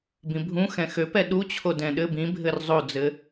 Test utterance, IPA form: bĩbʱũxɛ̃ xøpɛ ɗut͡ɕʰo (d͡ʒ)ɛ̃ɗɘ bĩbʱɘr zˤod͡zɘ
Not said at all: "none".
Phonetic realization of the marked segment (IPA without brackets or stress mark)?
d